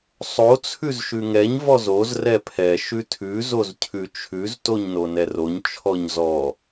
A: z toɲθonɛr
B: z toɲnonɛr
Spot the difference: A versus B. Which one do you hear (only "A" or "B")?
B